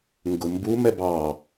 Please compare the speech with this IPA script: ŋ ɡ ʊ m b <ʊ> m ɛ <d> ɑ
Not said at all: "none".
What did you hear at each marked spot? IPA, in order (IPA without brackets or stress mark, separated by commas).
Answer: u, b